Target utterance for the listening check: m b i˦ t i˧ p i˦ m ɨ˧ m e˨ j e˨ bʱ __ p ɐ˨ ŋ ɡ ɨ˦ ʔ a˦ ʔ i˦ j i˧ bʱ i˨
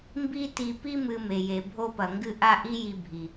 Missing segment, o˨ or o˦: o˦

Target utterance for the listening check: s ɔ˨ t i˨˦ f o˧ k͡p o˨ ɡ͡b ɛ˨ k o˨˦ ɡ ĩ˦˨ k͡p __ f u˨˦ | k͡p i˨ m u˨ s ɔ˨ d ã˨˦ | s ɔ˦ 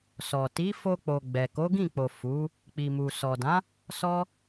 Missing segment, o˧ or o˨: o˨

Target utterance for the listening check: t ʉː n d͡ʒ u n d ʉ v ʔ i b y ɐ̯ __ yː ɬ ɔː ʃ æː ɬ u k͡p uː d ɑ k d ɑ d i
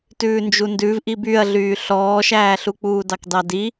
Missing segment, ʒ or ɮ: ɮ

